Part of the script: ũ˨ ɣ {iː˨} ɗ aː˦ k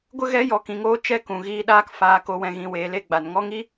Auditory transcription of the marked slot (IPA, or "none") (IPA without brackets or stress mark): iː˧